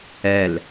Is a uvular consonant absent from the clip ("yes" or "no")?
yes